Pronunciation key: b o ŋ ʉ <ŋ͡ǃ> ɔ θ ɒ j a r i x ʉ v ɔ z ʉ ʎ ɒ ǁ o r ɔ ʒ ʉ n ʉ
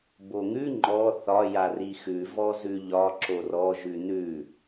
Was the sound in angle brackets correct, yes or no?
yes